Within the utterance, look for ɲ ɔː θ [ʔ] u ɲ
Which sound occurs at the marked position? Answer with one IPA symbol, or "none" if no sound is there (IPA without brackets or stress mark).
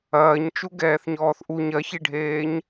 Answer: ʔ